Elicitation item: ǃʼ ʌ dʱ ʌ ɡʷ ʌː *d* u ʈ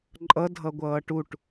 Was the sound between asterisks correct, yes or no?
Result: no